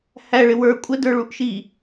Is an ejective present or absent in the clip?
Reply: present